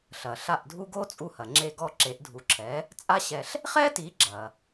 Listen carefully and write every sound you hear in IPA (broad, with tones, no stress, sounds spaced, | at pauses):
ɬ ɐ˩ ɬ a˥˩ ʔ dʱ u˥ ɡ o˥ t͡sʼ u˧ h ɐ˩ ŋ͡ǁ e˥˩ ɡ ɔ˥˩ ǁ e˩˥ ʔ dʱ u˩˥ ǁʰ ɛ˩˥ | t͡sʼ a˥ ɕ ɛ˧ ɬ | χ ɛ˥ t i˩˥ ɡ͡ǁ ɐ˩